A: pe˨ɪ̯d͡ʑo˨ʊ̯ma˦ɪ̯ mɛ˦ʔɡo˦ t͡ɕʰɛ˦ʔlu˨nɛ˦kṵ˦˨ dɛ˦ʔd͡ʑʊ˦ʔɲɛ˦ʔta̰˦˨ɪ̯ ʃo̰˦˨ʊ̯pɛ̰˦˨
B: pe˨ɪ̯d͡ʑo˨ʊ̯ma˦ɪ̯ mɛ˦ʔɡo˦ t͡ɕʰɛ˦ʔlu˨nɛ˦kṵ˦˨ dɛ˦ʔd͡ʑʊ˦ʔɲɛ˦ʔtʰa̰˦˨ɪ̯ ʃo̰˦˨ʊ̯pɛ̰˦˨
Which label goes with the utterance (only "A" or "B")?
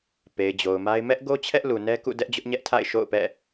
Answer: B